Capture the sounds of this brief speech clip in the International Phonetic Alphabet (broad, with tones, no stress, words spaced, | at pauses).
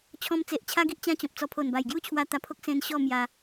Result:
t͡ɕʰɔ̃˧mt͡se˨ʔ t͡ɕʰa˦ɡi˦ʔ t͡ɕã˦t͡ɕɔ̃˨p̚t͡sɔ˧ pʰo˨˩nba˨˩jɡju˦t͡ɕʰwa˧ t̪a˧pʰo˦k̚ sẽ˦n ɕɔ˥˧ mja˧